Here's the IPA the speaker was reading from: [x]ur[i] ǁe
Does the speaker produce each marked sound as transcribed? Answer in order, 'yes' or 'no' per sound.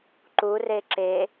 no, no

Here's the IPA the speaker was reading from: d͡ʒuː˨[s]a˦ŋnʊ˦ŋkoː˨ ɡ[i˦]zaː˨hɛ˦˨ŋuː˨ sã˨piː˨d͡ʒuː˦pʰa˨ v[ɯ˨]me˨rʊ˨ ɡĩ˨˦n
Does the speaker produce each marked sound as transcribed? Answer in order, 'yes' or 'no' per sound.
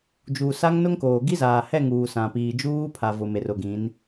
yes, yes, no

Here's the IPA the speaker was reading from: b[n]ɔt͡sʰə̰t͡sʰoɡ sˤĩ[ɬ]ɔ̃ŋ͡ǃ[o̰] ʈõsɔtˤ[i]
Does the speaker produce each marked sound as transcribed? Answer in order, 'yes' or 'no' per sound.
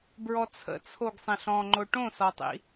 no, yes, no, no

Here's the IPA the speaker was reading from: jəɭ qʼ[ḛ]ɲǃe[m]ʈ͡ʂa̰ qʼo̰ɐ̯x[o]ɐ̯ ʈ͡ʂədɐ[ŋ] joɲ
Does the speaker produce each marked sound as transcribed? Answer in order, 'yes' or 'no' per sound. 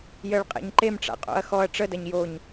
yes, yes, no, no

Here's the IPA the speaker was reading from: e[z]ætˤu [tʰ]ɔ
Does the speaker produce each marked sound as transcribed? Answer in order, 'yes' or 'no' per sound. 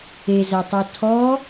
yes, yes

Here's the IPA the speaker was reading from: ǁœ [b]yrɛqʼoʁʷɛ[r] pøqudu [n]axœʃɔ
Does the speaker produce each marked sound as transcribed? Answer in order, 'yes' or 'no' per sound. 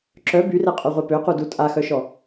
yes, no, no

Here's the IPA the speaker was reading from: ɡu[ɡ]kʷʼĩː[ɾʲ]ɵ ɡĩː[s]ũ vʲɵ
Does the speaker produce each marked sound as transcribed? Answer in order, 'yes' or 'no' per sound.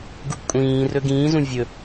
yes, no, no

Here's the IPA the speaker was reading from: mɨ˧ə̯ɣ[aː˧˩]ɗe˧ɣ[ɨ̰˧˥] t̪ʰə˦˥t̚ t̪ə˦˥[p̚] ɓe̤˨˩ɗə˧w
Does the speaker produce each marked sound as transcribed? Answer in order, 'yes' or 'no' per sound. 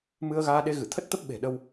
no, no, yes

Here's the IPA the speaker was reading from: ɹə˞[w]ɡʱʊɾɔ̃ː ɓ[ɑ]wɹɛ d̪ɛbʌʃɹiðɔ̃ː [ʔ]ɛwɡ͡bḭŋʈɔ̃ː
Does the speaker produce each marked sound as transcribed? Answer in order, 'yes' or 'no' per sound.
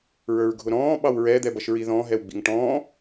no, yes, no

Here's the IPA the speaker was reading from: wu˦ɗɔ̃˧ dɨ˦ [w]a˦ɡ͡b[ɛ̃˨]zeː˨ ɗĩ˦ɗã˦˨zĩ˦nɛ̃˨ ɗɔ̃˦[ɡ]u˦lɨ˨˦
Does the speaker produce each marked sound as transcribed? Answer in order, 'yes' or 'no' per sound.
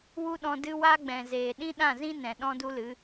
yes, yes, no

